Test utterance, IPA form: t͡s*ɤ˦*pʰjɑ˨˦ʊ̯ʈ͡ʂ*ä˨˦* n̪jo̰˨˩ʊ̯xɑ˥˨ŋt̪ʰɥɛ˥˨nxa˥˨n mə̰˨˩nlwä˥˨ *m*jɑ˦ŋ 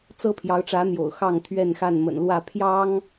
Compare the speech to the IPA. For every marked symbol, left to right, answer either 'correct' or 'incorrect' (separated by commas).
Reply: correct, correct, incorrect